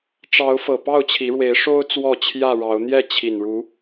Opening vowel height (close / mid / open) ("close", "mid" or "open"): open